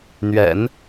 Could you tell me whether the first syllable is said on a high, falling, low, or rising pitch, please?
low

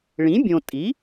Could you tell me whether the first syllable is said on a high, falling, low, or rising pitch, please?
rising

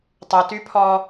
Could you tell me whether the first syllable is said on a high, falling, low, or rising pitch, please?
low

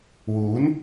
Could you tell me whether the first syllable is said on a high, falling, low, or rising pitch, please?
rising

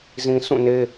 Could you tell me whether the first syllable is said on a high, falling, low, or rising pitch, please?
low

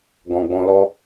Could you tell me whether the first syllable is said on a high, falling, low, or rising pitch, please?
low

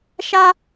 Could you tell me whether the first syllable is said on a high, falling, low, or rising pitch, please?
high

